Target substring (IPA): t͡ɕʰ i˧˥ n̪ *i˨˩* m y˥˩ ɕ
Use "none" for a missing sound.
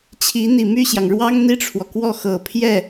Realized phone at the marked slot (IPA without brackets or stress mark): i˨˩